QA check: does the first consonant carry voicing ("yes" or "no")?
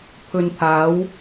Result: no